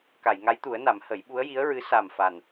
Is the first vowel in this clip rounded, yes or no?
no